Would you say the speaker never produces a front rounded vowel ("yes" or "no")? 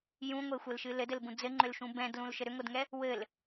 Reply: no